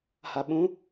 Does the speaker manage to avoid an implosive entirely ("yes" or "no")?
no